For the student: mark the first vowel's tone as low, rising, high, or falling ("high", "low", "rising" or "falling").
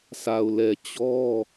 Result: low